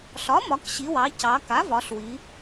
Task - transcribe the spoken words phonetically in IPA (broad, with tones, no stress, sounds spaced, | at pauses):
ɬ ɒ˩˥ m ɒ˩˧ k ɕ i˩˧ w ɑ˩˧ c ɑ˩˧ k a˩˥ v ɒ˩˧ ɬ w i˩˧